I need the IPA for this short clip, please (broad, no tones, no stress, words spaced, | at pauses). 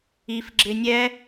if ɡ͡ǁɪnʲɛ